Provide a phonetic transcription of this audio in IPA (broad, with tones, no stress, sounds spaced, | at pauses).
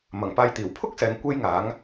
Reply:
m ɐ˨˩ ŋ p aː˧ j t̪ iː˨˩ w pʰ ʊ˥ k̚ s ɛː˨ ŋ kʷ e˥ j ŋ aː˨˥ ŋ